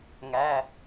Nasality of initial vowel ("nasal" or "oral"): oral